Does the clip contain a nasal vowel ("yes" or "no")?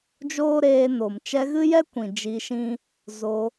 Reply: yes